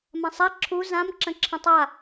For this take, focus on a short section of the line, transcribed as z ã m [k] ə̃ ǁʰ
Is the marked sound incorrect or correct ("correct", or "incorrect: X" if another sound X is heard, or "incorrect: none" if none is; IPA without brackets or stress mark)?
incorrect: ǁ